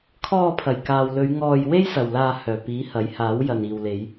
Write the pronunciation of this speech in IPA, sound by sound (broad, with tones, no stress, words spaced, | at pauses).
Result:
kʰɔː˧pʰɐ˨˩jkaː˨wlɵ˨˧ɥ ŋɔː˧j we˥jsɐ˨wlaː˧ hœː˨˩piː˨˥ hɐ˨˥jhaː˨˥w jɐ˨niː˨wle˨˧j